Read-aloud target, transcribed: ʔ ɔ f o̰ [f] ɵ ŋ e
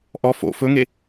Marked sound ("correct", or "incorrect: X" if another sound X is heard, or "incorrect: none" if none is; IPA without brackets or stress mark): correct